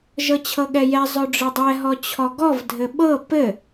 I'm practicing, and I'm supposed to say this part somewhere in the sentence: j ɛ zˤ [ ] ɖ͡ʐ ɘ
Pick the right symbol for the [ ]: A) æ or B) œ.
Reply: B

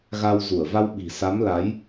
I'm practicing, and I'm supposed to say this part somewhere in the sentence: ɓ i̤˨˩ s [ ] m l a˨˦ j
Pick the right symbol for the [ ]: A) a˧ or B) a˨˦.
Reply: B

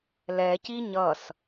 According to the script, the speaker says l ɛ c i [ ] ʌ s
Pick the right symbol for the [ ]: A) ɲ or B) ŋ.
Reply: A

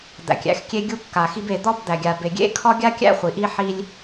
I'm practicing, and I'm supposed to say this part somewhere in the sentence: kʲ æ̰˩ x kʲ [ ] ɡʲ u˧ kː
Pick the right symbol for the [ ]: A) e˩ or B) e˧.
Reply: B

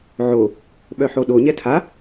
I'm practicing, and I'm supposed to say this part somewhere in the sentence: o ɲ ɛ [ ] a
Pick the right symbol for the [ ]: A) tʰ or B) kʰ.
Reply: A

